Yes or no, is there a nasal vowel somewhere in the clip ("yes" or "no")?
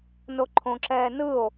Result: yes